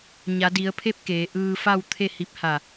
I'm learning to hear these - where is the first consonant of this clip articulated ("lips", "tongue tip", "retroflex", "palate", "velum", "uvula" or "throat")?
palate